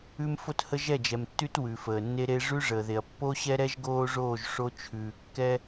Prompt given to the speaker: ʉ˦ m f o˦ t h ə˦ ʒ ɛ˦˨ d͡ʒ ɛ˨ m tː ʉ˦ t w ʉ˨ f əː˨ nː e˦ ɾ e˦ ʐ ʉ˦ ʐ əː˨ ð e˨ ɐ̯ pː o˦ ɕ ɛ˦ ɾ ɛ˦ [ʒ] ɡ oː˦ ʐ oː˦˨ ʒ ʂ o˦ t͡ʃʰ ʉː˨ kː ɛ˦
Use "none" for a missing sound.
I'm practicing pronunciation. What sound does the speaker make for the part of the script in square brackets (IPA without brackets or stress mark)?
ʒ